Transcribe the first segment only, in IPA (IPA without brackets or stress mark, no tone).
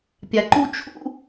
pʲ